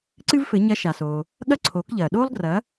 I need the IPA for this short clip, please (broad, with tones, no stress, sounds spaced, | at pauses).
ǀ ɨ˥ v f ɘ˩˥ ɲ ɐ˧˥ ʃ a˩ s oː˩ | ɠ ɐ˥ ǀʰ oː˩˥ k ʎ ɐː˩ ɗ oː˥ lˠ ɡ r ɐː˩˥